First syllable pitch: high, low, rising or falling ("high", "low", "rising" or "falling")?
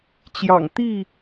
low